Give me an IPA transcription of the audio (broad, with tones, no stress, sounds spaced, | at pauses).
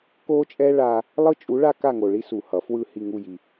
k o˦ t͡ʃʼ ɛ˦ ɭ a˦ | lˠ ɯ˦ t͡ʃʼ u˨˥ ɭ a˦ k a˦˨ ŋ o˨ ɭ i˦ s u˨ h ʌ˨˩˦ f w ɯ˦˨ h i˦˨ ŋ u˦˨ j i˨